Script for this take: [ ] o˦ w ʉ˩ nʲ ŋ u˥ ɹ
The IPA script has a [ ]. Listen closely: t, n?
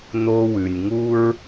n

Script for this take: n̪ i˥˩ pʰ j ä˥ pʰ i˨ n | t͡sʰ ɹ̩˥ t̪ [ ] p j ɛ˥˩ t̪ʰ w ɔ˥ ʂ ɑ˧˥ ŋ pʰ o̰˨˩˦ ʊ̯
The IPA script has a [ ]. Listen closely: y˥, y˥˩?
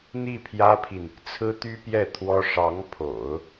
y˥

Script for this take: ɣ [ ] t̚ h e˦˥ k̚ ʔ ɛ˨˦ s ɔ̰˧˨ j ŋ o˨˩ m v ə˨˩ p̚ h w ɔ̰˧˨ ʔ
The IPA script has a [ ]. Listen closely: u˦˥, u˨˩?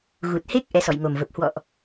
u˨˩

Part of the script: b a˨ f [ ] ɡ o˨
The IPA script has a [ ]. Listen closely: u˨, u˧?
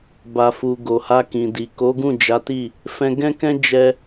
u˨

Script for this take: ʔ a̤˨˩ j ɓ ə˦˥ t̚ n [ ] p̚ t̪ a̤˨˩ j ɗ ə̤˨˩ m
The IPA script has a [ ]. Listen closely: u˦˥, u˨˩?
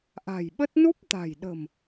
u˦˥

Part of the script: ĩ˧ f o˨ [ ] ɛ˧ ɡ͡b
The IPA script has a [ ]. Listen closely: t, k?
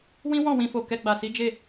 k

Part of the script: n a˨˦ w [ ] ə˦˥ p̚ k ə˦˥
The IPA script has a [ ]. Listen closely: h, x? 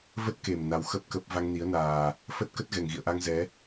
x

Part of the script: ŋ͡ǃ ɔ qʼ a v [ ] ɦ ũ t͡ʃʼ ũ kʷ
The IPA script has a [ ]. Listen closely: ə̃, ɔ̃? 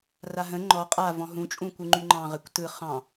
ɔ̃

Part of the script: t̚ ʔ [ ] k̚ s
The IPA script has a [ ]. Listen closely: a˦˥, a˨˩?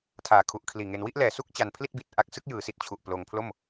a˦˥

